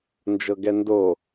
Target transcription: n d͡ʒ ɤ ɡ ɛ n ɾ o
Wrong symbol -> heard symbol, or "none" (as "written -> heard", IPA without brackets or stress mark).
ɾ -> d